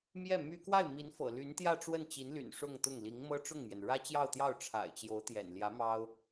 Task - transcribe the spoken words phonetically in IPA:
m j ɛ˥˩ m y˥ k w a˥˩ ɪ̯ m i˧˥ n f ɤ̰˨˩ l y˧˥ n t̪ j ä˥˧ ʈ͡ʂ w ə˥˩ n t͡ɕ i˧˥ n l y̰˨˩ n ʂ ʊ˥˧ ŋ t̪ ʊ˥˩ ŋ l i˧˥ ŋ m ɤ˥ ʈ͡ʂ ʊ˥˩ ŋ m j ɛ˩ n ɻ ä˥ t͡ɕ j ɑ˥˧ ʊ̯ t̪ j ɑ˥˩ ʊ̯ ʈ͡ʂʰ a̰˨˩ ɪ̯ t͡ɕ j o˧˥ ʊ̯ t̪ j ɛ̰˨˩ n l j ä˧˥ m ɑ˥ ʊ̯

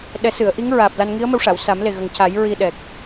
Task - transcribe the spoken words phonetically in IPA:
ɗ ɛ˨˩˦ s ɨ˨˩˨ ə̯ ʔ i˧˥ ŋ ɹ aː˨˩ p̚ l a˧ n ŋ i˧˥ ə̯ m ə˧ w ʂ a˨˩˨ w s a˨˩˦ m l e˨˩ ɣ ə˨˩ ŋ c a˨˩˦ j ɹ i˧ ɗ ɛ˨˩ k̚

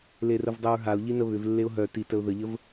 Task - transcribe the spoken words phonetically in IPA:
l e r ə v dˤ ə ɹ ɦ a ʊ̯ ʎ i n ə β ʏ v lː e ʊ̯ ɦ œ t i t ə ʊ̯ ð ə ʎ ə v

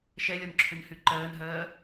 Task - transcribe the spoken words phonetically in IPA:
ʃ ɛ lʲ ɒ n ǁʰ ʏ n h y ǃ ɜː n ɦ ɜː

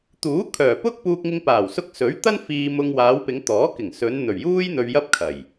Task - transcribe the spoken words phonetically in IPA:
t̪ uː˨˥ kʰ œː˨˩ p ʊ˥ k̚ p uː˧ k̚ ŋ ɪ˧ ŋ p aː˨˩ w s ʊ˧ k̚ s ɵ˨˥ ɥ t̪ ɐ˥ n f iː˧ m ʊ˧ ŋ w aː˨˧ w p ɪ˨˧ ŋ t̪ ɔː˨˥ k ɪ˨˩ ŋ s ɵ˨˧ n n̪ ɵ˨˩ ɥ j uː˥ j n̪ ɵ˧ ɥ j ɐ˥ p̚ kʰ ɐ˨˩ j

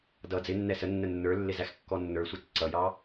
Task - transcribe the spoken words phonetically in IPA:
d ʌ d͡z ɪ nː ɛ s ə nː ə nː ə˞ lː ɪ z æ x kː ɔ nː ə˞ sʷ ɑ t͡s ǀ ʌ j ɑ

